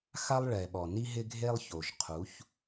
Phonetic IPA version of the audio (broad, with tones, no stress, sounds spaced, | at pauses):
x a˦ lˠ ɭ ɛ˨ ɓ ɔ˨ n i˦ ɦ ɪ˦ ɡʱ e˦ lˠ ç o˨ ʒ qʰ u˨˦ ç